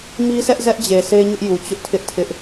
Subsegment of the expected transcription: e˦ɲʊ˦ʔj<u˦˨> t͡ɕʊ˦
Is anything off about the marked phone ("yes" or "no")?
yes